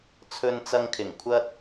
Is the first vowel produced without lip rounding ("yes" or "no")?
no